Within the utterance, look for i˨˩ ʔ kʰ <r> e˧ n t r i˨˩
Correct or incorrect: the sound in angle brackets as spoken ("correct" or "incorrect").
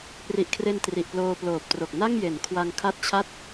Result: correct